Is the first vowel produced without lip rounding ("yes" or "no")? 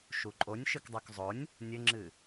no